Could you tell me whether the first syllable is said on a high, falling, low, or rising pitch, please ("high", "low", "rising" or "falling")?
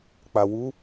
low